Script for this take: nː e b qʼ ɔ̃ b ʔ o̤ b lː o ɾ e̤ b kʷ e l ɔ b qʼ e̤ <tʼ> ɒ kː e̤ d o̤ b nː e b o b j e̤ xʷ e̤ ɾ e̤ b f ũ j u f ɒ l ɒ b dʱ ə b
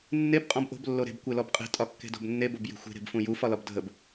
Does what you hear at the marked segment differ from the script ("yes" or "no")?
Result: no